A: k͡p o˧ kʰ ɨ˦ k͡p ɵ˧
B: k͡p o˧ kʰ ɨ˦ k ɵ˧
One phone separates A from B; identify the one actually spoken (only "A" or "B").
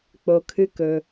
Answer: B